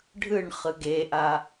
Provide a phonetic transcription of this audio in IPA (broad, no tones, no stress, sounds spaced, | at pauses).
ɖʱ ɯ ɳ χ ɯ ɡ e ʔ a